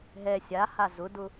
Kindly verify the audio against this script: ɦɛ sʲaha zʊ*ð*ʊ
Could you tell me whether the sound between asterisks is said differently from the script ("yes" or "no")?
yes